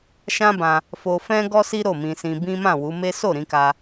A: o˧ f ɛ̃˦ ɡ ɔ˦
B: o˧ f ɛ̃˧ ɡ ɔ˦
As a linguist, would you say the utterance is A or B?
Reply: A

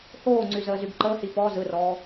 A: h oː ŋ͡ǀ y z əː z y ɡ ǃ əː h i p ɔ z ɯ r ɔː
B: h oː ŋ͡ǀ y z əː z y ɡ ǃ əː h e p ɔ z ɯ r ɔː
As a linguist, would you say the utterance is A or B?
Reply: A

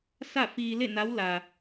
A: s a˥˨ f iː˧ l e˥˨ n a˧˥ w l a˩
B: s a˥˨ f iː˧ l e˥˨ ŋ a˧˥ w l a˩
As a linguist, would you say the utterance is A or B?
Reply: A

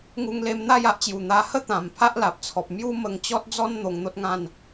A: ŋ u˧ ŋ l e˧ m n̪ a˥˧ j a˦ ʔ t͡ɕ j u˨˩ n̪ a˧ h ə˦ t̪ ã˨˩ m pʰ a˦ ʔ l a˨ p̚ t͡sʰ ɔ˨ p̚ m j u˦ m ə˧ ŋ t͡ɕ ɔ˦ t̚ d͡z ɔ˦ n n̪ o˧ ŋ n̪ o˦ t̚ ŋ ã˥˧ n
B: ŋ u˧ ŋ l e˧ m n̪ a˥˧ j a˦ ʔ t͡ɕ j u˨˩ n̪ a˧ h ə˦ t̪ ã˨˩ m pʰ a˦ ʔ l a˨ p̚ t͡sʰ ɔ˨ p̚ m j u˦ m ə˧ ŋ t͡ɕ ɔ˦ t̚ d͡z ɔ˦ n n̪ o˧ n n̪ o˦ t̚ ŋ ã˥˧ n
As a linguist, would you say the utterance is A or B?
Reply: A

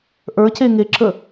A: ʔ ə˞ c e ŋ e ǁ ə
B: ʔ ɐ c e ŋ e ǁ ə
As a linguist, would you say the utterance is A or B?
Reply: A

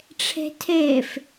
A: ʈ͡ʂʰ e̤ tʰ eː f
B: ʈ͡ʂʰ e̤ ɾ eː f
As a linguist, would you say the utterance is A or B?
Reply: A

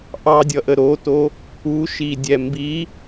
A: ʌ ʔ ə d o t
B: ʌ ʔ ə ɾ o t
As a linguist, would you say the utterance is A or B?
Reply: B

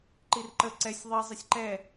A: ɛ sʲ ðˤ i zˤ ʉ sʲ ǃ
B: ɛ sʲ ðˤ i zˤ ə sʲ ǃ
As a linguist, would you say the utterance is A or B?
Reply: B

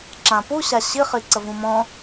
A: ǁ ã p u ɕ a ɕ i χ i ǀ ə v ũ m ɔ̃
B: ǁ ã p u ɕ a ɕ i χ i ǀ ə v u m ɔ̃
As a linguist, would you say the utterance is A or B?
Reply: A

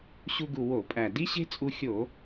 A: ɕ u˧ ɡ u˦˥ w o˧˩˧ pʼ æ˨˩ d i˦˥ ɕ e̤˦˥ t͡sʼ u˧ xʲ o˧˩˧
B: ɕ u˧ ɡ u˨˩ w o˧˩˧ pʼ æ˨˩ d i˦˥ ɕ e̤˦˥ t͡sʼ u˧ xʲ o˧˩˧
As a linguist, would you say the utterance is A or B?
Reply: B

